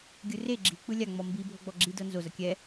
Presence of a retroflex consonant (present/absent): absent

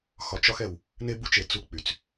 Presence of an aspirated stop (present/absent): absent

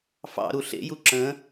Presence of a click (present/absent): present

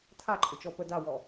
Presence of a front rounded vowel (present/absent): present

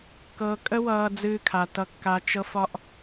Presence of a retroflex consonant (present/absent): absent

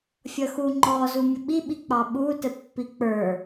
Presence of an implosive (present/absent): present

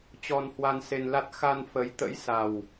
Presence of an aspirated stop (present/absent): absent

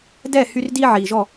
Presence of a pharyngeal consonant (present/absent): present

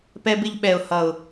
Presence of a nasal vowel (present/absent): absent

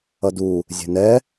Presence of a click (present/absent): absent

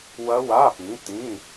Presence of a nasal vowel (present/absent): present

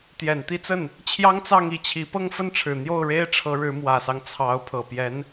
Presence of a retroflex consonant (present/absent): present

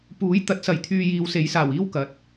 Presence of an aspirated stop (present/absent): present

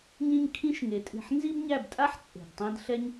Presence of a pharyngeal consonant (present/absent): present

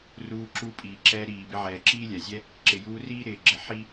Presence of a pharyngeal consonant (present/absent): present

